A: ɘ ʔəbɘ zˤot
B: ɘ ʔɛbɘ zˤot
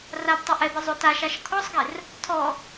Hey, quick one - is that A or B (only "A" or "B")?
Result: B